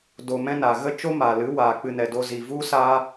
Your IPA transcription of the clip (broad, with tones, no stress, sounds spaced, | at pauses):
d o˧ m ɛ̃˦ n a˨ ɣ ə˦ t͡ʃ o˦ m a˨ l ɨ˨˦ w aː˨ k͡p ɨ˧ n ɛ˨ d o˧ z i˨ v u˦ s aː˦